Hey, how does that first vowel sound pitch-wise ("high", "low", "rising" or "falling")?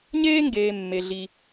high